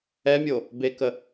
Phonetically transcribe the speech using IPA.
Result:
ɛ mʲ o | b e k ə

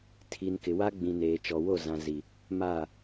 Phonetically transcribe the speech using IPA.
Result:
tʰ i˨ n k ɪ˨ w a˦ ɡ͡b ĩ˨ n eː˨ t͡ʃ ɔ˨ w o˦˨ z ã˨ z i˨ | m a˦˨

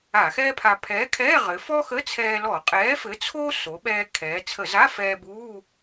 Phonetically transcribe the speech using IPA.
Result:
a˧˩˧ x ɛː˥ pʰ a˧ pʰ ɛː˨˥ kʰ ɛː˧˥˧ ʁ ɘ˩˧ f ɔ˥ x ə˧˥˧ t͡sʰ ɛː˧ l ɔ˧˩˧ qʼ ɛː˨˥ f ɘ˨˥ t͡sʰ oː˥ s o˩˧ ɓ ɛː˧ kʰ ɛː˩˧ t͡sʰ ə˧˩˧ z a˧˥˧ f ɛː˧ b uː˧˥˧

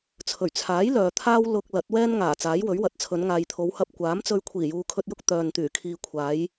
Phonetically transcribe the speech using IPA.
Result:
t͡sʰ ɵ˨˩ ɥ t͡sʰ aː˨˥ j l œː˨ t̪ʰ aː˥ w l ʊ˧ k̚ l ɐ˨˥ t̚ w ɛː˥ n ŋ aː˨˩ t͡s aː˨˥ j w ɵ˨˥ ɥ w ɐ˨˥ t̚ t͡sʰ ɵ˨˧ n ŋ aː˨ j t̪ʰ o˨˧ w h ɐ˧ p̚ kʷ aː˨˥ m t͡s ɵ˧ ɥ kʷʰ iː˨˩ j uː˨ kʰ ɵ˧ t̚ j ʊ˥ k̚ t̪ œː˨ n t̪ yː˨˩ kʰ iː˨ kʷʰ aː˨˧ j

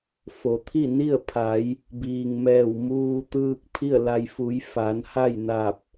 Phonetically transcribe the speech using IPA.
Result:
f o˩˧ t̪ʰ i˥˨ n i˥˨ ə̯ pʰ a˩˧ j | b iː˩ ŋ m ɛː˧˩ w m uː˧ t̪ ɯː˧ k̚ pʰ i˥˨ ə̯ l a˧ j f u˩˧ j f a˩˧ n h a˥˨ j n a˧˩ p̚

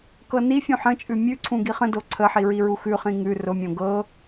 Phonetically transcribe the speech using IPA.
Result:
k ɤ n i fʲ ũ ħ ə̃ t͡ʃʼ ʉ mʲ ʉ ǀʰ ũ ɡ i χ ə̃ d o ǀʰ ə ħ i ɹ i ɹ u x ʉ χ ĩ ŋ ʉ r ʊ mʲ õ ɡ ɤ

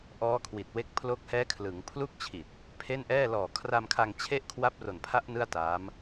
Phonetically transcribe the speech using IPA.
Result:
ʔ ɔː˦˥ kʰ w i˨˩ t̚ w e˦˥ k̚ pʰ l o˦˥ k̚ h ɛː˦˥ kʰ l ɯ˩˦ ŋ pʰ l u˥˩ k̚ t͡ɕʰ i˨˩ t̚ | pʰ e˥˩ n ʔ ɛː˥˩ l ɔː˨˩ kʰ r a˧ m kʰ a˧ ŋ t͡ɕʰ e˥˩ ʔ kʰ w a˦˥ p̚ r o˨˩ n pʰ a˦˥ ʔ n ɯ˥˩ a̯ t aː˦˥ m

